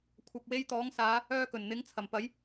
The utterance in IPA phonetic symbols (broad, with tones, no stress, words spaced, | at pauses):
kʷʰɐ˧p̚ we˧jt̪ɔː˨˥ŋsaː˨˧ | œː˧kɵ˨˩nn̪ɪ˨˥ŋ t͡sʰɐ˨˩mpɐ˨˥j